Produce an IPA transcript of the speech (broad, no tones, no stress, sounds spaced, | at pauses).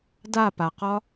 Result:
d a p a q ɒ